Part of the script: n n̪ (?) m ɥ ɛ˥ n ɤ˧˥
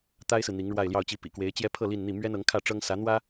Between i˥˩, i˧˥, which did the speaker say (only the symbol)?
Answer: i˥˩